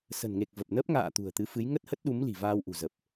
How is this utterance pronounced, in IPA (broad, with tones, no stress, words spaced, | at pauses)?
sə̤˨˩nŋe˨˩k̚ və˨˩p̚nə˦˥p̚ ŋa̰ː˧˨ t̪ṳ˨˩ə̯t̪ɨ˨˦fɨ˨˦j ŋə˦˥t̚hə˦˥t̚ɗu˨˦m li̤˨˩vaː˧wʔṳ˨˩zə˨˩p̚